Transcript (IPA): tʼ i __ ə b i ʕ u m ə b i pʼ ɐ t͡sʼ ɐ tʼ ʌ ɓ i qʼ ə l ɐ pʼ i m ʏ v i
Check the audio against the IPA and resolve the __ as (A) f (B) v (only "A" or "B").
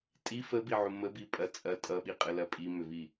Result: A